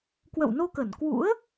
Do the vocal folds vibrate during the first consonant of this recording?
no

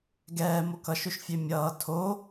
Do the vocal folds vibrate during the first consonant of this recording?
yes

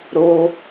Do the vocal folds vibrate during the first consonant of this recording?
yes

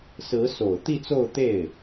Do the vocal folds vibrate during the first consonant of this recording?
no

